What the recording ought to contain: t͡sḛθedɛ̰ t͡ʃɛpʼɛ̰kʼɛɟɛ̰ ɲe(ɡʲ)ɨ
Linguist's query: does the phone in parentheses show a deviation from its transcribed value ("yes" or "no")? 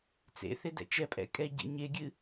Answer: no